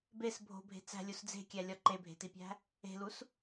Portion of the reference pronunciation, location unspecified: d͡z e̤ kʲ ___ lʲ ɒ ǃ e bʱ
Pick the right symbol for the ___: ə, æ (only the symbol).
æ